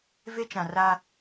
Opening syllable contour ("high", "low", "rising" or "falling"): high